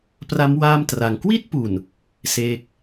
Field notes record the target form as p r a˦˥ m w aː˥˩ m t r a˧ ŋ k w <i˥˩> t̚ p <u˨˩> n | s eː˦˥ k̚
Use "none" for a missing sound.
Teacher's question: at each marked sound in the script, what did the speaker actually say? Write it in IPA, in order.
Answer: i˥˩, u˨˩

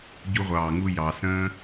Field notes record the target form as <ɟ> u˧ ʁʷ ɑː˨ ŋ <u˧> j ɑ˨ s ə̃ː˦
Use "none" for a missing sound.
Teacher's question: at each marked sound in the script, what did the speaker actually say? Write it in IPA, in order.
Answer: ɟ, u˧

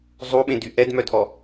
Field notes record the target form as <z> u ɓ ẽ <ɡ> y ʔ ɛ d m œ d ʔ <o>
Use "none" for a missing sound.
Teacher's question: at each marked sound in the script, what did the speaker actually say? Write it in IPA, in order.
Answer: zˤ, d, ɔ

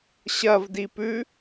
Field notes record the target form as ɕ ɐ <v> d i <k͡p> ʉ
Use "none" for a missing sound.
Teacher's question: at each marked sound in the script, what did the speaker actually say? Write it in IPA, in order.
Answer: v, p

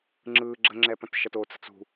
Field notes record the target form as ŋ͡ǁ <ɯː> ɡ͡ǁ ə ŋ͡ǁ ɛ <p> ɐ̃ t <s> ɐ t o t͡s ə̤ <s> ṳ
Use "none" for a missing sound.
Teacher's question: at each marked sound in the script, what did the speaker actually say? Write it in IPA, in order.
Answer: ɯː, p, ʃ, t͡s

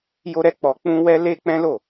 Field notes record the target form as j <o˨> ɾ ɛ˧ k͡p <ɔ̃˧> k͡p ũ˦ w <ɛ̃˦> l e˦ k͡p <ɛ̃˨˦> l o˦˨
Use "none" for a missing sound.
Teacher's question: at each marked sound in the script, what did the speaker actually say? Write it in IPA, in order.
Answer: o˧, ɔ˧, ɛ˦, ɛ̃˦

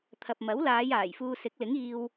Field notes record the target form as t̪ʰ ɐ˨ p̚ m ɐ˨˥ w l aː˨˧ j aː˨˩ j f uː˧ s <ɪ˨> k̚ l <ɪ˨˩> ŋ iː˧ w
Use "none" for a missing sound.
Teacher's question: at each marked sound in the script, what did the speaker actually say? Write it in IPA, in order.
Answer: ɪ˨˥, ɪ˨˥

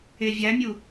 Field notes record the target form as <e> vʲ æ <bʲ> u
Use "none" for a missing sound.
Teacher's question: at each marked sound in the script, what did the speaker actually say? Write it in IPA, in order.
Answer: e, mʲ

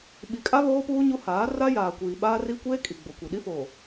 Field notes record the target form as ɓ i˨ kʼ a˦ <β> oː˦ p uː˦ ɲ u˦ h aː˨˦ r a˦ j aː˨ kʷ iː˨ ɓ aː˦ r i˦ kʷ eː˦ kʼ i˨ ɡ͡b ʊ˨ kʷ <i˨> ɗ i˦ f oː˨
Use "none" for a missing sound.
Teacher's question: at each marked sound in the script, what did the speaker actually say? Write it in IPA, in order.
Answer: β, i˨

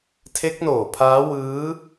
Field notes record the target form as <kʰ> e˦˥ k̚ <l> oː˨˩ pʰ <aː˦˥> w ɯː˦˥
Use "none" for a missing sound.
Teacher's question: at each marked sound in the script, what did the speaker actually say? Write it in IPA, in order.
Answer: tʰ, n, aː˦˥

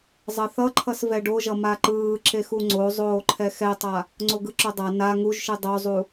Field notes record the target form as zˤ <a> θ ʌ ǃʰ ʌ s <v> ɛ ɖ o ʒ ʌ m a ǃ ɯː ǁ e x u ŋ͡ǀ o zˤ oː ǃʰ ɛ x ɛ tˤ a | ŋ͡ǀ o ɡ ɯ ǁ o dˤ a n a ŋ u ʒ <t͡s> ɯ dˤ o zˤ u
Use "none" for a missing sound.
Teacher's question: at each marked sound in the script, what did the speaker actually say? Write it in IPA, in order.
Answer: ʌ, v, ʃ

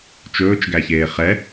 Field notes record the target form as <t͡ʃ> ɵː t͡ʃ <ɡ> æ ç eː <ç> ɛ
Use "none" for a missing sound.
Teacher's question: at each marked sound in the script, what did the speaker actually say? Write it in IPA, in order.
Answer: t͡ʃ, ɡ, χ

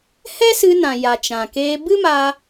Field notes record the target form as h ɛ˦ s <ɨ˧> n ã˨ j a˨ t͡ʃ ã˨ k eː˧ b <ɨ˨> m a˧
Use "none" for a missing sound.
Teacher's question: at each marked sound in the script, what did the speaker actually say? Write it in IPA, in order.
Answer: ɨ˧, ɨ˦

